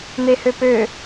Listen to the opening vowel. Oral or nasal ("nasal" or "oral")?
oral